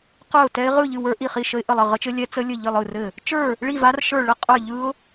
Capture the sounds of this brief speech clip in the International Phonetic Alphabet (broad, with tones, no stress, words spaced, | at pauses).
qə˞˥˨ʊ̯tɛ˦˥ɪ̯ ʁɯ˥˨ ʎɨ˥˨wə˞˦˥ ʔi˥˨χi˥˨ ʃə˦˥ɪ̯ʔə˥˨lˠɘ˥˨ ʁə˦˥t͡ʃɘ˦˥lʲɛ˦˥ t͡sə˦˥lʲɘ˥˨ ʎɨ˥˨lˠɯ˥˨rɘ˥˨ | t͡ʃə˞˥˨ | ɭi˥˨va˦˥rʃə˞˥˨ ɭə˥˨ qʼə˞˥˨ʎɯ˦˥ʊ̯